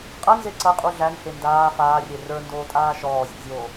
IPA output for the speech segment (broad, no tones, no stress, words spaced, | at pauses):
qʼɐnze ǀɐqʼu ɮænhe ndaː faːrʲe rə˞ndoːtʼaː ʃɔːzʲæ̰zʲoː